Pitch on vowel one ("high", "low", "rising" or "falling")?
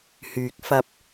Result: low